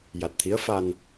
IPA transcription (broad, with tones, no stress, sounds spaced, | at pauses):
j a˨˩ t̚ t̪ʰ i˧˥ ə̯ f a˧ n